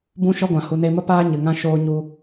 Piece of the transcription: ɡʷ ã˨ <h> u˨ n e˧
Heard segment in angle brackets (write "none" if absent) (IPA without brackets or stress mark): h